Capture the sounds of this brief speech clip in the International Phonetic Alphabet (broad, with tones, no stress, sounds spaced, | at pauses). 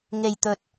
ŋ e˨ j t̪ ɵ˨ t̚